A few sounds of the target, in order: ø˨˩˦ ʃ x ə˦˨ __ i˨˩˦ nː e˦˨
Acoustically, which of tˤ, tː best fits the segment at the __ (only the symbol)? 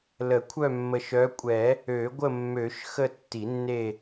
tː